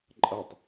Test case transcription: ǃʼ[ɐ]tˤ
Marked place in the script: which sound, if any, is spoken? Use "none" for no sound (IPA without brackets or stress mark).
ɐ